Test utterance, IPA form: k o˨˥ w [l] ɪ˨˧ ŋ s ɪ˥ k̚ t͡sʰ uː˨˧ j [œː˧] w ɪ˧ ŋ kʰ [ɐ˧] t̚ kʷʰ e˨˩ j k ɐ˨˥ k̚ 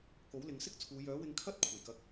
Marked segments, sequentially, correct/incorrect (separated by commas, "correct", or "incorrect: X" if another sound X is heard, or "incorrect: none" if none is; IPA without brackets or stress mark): correct, incorrect: œː˨˥, incorrect: ɐ˥